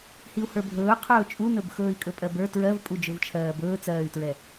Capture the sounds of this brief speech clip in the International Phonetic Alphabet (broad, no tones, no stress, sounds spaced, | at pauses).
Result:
h i u̯ h ə˞ bʱ ɵː qʰ ɵː t͡ʃʼ u n ɵ b x ɵː i̯ kʼ ɵ pʼ ɜ b ə˞ t ɹ ɜ v pʼ u d͡ʒ ɵ v t͡ʃʰ ɜː b ɵː t͡s ɜː y̯ t ɹ ɛ